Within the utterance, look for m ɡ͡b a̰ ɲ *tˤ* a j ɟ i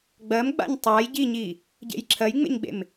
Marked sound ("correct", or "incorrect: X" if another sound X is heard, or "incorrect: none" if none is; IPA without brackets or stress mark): correct